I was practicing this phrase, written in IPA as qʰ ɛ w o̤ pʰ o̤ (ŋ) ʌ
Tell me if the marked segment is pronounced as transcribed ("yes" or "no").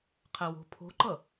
no